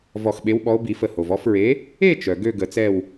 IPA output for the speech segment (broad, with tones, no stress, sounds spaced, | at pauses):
v ɔ˧˩ x ɓ e˨˥ w ɓ ɔ˨˥ o̯ b i˨˩˦ f ə˧˩ h o˩ v ɔ˥˨ f ɹ e˨˥ | e˥˨ t͡ʃ œ˩ ɡ ø˥˨ ɡ ə˨˩˦ t͡s ɛ˥˨ w